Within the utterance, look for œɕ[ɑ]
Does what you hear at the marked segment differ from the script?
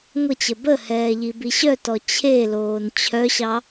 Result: no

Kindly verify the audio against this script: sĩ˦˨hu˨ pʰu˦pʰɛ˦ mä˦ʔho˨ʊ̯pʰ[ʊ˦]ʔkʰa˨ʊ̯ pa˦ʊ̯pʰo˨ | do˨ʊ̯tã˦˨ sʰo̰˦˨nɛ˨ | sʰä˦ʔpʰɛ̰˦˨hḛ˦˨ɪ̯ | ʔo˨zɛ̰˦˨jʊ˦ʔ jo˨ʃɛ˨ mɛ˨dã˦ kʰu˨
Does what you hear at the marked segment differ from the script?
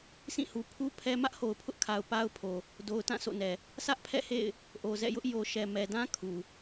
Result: no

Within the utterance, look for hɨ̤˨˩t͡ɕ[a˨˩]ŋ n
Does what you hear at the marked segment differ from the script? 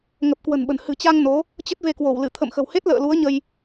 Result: yes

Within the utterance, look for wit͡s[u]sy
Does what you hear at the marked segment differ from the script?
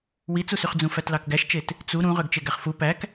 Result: no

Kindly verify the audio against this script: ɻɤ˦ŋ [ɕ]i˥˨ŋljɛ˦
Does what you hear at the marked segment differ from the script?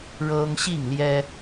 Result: no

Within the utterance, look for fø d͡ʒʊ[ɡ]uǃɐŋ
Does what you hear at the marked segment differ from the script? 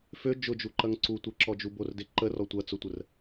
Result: yes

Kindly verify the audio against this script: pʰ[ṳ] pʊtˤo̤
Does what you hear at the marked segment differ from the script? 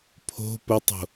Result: yes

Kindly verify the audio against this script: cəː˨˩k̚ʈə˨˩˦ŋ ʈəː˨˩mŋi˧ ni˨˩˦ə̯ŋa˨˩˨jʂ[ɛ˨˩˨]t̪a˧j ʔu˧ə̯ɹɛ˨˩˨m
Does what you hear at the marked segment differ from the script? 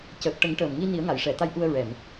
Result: no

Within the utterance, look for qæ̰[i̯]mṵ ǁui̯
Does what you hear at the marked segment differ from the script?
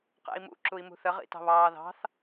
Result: no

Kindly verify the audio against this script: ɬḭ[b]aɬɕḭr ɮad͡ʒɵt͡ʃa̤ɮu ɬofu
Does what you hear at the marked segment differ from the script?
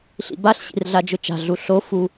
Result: no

